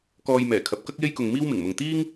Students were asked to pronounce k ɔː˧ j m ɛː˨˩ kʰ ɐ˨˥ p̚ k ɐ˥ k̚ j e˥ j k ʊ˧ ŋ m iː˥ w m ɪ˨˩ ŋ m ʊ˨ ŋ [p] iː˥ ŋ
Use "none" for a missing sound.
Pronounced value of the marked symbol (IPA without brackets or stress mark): t̪